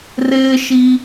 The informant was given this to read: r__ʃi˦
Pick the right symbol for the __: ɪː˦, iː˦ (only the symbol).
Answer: ɪː˦